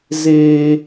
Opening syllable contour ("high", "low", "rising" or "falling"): high